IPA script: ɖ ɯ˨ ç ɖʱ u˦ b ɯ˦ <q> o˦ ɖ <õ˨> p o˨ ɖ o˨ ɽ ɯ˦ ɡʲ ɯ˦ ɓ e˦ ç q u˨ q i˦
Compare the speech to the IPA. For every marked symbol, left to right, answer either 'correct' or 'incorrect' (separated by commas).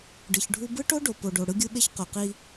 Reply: incorrect, incorrect